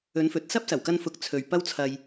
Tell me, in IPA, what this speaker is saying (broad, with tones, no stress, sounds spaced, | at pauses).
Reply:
ɵ˨˧ n f ɵ˨ t̚ s ɐ˥ p̚ s ɐ˨˩ w k ɐ˧ n f ʊ˨ k̚ t͡sʰ ɵ˨ ɥ p ɐ˥ w t͡sʰ ɐ˧ j